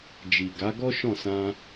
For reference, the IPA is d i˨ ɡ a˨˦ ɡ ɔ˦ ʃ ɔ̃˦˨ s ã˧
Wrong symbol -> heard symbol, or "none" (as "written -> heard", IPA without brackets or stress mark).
d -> d͡ʒ